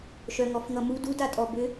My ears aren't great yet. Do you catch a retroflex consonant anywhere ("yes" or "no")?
no